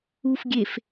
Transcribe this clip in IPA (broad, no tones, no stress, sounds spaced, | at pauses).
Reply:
u f ɡʲ e f